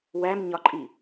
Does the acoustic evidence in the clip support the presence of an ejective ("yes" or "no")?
yes